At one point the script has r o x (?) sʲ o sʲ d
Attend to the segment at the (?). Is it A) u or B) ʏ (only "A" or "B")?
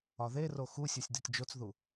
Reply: A